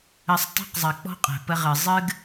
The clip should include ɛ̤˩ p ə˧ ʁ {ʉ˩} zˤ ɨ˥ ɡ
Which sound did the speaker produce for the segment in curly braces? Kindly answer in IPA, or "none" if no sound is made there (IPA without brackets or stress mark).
ɨ˩